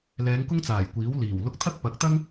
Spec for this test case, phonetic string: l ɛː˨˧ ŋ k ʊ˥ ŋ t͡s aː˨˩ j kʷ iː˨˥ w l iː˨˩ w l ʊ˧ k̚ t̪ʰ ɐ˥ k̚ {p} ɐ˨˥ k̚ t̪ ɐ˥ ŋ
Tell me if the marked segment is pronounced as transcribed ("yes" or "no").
yes